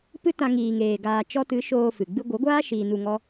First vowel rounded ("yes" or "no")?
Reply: no